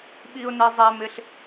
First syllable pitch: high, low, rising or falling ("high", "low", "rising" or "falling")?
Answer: high